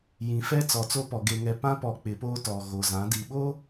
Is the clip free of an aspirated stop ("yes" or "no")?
yes